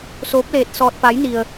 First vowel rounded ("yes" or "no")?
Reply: yes